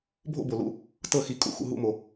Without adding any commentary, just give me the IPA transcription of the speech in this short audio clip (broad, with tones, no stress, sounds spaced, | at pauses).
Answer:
bʱ o̰˥˩ b o˩ l ṵ˧˩ | t ɤ˥˩ x i˧˩ kʼ ṵ˧˩˧ x ṵ˧˩ ɦ ṵ˥˩ m o˩